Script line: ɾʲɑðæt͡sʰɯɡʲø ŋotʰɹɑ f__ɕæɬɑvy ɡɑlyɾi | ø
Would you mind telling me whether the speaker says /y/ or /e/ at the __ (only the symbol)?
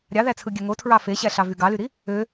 e